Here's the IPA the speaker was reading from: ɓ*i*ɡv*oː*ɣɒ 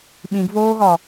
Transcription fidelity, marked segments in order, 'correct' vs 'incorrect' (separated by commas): incorrect, correct